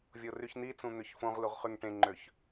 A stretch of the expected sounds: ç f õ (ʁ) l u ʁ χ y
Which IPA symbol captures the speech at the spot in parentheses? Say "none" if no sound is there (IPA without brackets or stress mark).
ʁ